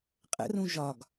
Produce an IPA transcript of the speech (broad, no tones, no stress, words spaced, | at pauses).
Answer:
qʼə̰rũ ʒɒɡ